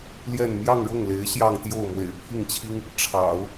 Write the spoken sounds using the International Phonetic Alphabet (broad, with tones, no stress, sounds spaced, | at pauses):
l j ɛ˥˧ n m j ɑ˥˧ ŋ ɻ ʊ˥˩ ŋ l e˧˥ ɪ̯ ɕ j ɑ˥˧ ŋ t̪ j o˥˩ ʊ̯ m w ḛ˨˩ ɪ̯ pʰ i˥˩ ŋ t͡ɕʰ i˥ ŋ | ʈ͡ʂʰ ɑ̰˨˩˦ ʊ̯